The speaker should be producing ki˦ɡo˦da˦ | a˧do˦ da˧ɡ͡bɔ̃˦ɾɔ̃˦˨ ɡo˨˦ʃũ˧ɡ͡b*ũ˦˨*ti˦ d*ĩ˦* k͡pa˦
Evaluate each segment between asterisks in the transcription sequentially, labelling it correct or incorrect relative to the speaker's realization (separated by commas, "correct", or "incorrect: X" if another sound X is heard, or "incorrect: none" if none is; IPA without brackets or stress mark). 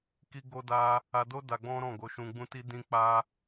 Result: incorrect: ũ˦, correct